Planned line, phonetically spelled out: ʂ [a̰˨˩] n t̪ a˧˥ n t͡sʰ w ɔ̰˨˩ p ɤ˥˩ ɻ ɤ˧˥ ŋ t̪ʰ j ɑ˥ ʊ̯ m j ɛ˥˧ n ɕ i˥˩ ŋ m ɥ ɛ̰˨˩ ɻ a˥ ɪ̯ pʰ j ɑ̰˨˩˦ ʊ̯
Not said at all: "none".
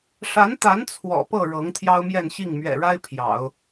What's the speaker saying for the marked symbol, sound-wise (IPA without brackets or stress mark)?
a˧˥